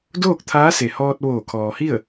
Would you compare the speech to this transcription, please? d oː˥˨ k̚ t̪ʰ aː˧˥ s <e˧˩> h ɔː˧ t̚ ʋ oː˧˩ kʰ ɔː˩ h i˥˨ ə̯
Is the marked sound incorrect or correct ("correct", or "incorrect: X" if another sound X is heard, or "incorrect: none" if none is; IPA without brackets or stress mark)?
incorrect: e˩